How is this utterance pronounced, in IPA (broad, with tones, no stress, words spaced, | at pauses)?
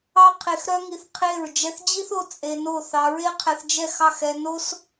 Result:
ɑ˦ qʰe˧xɾœ˦ŋi˧θ qʰe˦˨ɹ d͡ʒɛ˧θd͡ʑi˦θo˧ t͡sʼe˧no˦˨ θɑ˧ɹe˦qʰɛ˧θd͡ʒɛ˦˨x ɑ˦˨xɛ˧ no˦s